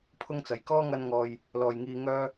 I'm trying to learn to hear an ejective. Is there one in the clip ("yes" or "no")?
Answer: no